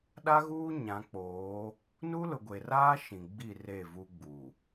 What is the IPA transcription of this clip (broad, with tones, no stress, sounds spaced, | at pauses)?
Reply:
ɗ a˦ ɣ uː˦ ɲ ã˨˦ k͡p oː˨˦ | n u˦ l ʊ˨ ɡʷ e˨ r aː˦ ʃ ĩ˨ ɡ͡b i˦˨ r e˦˨ v u˦ ɡ͡b u˨